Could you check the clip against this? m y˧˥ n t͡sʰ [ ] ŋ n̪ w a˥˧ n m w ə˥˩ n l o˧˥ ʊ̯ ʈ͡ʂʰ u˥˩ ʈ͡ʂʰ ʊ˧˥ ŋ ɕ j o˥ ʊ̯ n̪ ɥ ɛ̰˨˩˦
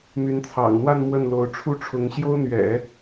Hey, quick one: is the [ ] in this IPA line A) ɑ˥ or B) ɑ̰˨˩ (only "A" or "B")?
B